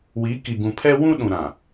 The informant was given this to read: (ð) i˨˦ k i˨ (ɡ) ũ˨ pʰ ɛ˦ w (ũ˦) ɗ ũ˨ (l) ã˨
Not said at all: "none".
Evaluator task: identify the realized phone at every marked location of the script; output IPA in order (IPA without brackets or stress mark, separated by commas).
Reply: w, ɡ, ũ˦, ɾ